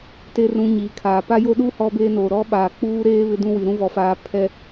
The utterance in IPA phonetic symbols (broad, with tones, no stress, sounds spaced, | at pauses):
t e˦ r ũ˨ ɲ iː˨ kʰ aː˨ p a˦ j o˦ ɗ uː˦ h ɔ˦ b eː˦ n oː˨ ɾ ɔ˦ ɓ aː˨ k͡p uː˦ ɾ eː˦ β ɪ˦ d ũ˦ w i˨ ɾ ũ˦ v ɔ˨ f aː˨ pʰ ɛ˨